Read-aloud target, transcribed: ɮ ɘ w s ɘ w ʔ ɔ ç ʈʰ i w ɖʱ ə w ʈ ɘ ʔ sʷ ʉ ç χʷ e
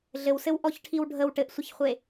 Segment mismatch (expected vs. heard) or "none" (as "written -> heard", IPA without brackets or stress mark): ʉ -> ə